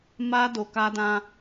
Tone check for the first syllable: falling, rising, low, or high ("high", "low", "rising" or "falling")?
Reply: high